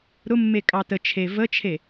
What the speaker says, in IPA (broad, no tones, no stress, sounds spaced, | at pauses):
ɾ ʊ mː e kʼ ɑ t ə t͡ʃʰ e v ə t͡ʃʰ e